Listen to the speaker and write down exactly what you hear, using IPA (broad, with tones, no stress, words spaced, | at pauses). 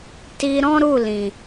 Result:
ti˧ɾɔ̃˦ɾu˦˨lĩ˨